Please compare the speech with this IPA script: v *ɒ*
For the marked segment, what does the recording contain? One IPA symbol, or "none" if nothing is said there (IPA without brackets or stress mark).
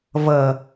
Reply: ʌ